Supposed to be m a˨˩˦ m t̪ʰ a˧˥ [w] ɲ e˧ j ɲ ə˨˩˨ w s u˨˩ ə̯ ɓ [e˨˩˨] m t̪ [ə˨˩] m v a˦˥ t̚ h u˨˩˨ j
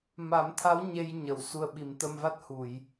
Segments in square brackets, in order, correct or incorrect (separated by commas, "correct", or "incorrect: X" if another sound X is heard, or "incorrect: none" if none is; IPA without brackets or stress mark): correct, incorrect: i˨˩˨, incorrect: ə˧